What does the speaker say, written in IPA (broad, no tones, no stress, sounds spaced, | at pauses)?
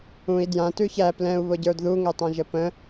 ũ i̯ d j ã t ʉ ç æ p l ɛ̃ u̯ β ʊ ɟ ə˞ d ð u ŋ ɛ tˤ ã ʒ ə p ə̃